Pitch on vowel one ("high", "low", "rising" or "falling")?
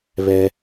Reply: high